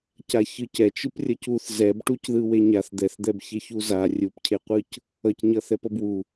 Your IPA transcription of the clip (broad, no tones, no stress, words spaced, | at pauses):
caçɯc ɛt͡ʃɯp rʲʌcuθ zɛbʈucðɯ weɲaθ d̪ɛθd̪ɛbçeç uza rʲupcʰeqʷɯc | ʌcɲʌθɛp ʌbwu